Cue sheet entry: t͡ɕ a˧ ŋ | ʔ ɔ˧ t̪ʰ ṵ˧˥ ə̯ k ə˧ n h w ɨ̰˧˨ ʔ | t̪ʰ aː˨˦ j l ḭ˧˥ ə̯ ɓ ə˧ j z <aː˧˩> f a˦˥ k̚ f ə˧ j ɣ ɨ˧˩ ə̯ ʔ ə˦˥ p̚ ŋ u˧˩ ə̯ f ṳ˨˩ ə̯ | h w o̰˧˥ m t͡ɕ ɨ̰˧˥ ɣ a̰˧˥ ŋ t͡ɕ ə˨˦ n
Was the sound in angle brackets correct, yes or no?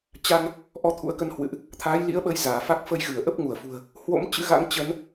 yes